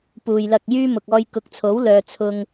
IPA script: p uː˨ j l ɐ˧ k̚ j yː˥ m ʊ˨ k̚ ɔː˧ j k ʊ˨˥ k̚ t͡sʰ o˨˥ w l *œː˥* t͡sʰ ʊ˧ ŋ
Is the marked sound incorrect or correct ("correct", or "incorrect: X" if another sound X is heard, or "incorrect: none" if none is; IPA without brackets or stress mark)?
incorrect: œː˨